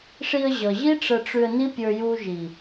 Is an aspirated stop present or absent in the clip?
absent